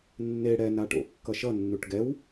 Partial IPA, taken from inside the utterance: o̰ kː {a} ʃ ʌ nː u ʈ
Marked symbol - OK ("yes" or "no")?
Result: no